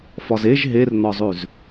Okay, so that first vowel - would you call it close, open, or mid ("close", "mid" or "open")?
open